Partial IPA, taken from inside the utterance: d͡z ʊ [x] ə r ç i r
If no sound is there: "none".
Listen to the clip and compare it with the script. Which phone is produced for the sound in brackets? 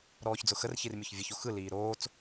x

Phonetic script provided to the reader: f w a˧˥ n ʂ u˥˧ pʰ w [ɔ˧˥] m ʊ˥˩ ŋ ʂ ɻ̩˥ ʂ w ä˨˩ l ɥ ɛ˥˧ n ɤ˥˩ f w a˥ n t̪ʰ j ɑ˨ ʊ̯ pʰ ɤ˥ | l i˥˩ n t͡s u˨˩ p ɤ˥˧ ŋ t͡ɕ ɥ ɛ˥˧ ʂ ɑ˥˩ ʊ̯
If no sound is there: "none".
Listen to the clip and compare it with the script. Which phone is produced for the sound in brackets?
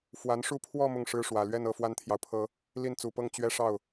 ɔ˥˧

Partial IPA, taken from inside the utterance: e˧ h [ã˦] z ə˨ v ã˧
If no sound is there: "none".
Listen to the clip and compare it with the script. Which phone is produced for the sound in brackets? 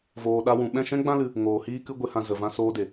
ã˧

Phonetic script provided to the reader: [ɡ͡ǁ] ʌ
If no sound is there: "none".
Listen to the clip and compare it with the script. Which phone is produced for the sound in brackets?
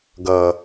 ɡ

